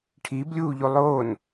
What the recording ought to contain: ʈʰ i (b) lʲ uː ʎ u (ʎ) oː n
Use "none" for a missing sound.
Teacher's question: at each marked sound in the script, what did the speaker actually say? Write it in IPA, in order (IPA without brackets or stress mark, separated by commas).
b, lˠ